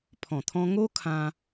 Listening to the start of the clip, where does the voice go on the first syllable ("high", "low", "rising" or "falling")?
low